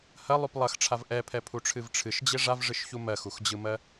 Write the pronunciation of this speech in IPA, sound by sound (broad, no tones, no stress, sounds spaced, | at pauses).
h ɐ lˠ u p lˠ ɐ x ʈ͡ʂʰ a v ʔ ɛ pʰ ɛ pʰ u ʈ͡ʂʰ ɨ v ʈ͡ʂʰ ɨ ʃ d͡ʑ e ʐ a v ʐ ɨ ʃ ç u m ɜ x u x d͡ʑ ɯ m ɜ